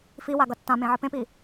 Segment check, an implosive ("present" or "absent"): absent